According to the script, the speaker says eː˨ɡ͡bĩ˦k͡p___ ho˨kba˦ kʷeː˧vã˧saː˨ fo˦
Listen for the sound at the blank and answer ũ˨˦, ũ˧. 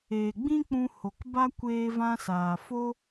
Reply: ũ˧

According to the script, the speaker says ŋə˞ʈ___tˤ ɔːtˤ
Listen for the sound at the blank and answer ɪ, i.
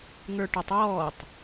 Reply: ɪ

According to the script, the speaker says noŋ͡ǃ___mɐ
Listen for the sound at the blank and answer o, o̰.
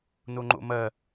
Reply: o̰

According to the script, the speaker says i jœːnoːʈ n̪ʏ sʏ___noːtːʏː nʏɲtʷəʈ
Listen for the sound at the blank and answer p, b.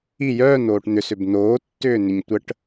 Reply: b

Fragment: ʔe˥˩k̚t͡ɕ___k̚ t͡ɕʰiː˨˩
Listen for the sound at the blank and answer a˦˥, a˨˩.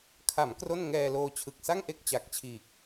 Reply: a˨˩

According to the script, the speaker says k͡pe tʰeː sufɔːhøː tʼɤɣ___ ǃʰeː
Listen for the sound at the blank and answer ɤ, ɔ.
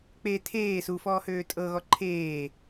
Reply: ɔ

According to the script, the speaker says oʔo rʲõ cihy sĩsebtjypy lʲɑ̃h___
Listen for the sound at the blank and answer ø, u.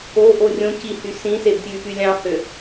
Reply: ø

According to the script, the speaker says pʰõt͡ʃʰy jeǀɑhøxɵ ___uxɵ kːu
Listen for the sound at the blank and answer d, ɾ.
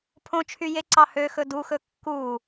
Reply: d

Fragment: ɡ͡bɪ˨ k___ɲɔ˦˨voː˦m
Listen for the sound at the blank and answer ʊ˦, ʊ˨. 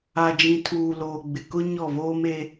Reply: ʊ˦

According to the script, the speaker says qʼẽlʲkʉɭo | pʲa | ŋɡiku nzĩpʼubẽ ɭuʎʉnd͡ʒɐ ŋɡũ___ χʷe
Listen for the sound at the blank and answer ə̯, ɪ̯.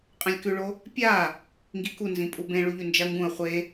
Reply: ə̯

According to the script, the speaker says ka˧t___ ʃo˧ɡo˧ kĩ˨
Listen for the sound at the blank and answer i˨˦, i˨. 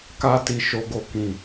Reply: i˨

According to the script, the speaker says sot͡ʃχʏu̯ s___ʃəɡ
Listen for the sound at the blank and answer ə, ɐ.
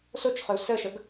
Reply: ə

